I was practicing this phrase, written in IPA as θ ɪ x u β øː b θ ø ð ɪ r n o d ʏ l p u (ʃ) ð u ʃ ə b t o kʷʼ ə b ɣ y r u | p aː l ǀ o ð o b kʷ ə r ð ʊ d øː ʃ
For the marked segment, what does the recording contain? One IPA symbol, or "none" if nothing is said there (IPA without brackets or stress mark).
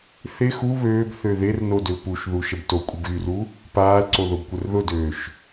ʃ